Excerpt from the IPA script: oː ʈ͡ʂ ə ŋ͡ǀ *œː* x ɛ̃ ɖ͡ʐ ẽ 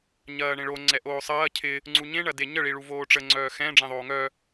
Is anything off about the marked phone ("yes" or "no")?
no